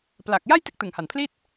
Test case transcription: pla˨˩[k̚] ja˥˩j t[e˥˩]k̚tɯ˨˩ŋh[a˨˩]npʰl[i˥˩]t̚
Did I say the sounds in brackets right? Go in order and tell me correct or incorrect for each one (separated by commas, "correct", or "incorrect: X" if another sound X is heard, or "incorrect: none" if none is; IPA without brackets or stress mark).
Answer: correct, correct, correct, correct